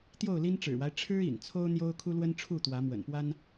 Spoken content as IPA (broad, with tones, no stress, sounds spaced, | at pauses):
t̪ j o˥˨ ʊ̯ l i˦ n ʈ͡ʂ ɻ̩˨˩ w a˦ ɪ̯ ʈ͡ʂʰ ɻ̩˦ ḭ˨˩ n t͡sʰ o˦ ʊ̯ n̪ j o˦ ʊ̯ kʰ u˦ l w ə˦ n ʈ͡ʂʰ u˥˨ t̪ w ä˨˦ m w ə̰˨˩ n p w a˦ n